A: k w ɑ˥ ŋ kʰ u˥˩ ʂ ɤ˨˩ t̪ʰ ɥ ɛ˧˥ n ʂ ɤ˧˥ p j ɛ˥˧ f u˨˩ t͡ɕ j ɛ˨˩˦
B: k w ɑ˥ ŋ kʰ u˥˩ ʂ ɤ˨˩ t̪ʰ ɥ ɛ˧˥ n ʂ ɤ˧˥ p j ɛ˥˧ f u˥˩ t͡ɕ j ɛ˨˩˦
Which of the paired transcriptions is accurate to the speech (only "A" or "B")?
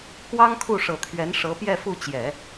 B